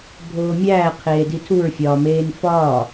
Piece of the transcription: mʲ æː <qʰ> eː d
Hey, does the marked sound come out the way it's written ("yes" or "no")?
yes